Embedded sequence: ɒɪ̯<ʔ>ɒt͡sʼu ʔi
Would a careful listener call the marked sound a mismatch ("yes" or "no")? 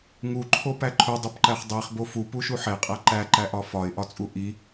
no